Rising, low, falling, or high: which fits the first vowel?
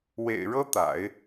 low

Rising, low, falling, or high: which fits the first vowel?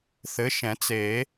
rising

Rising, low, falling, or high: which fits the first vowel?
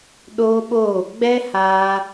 high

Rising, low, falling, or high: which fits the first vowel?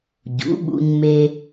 rising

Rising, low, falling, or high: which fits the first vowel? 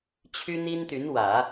high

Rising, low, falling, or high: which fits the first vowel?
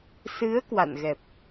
rising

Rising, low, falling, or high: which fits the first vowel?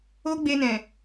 high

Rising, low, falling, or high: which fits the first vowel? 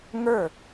falling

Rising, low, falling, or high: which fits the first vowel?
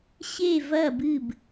falling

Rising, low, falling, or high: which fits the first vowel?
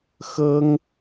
high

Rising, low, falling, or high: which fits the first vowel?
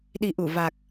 low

